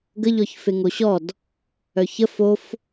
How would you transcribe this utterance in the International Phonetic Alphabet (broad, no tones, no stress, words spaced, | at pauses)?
ɡəʎɔç feŋoɕɔd | œçə fof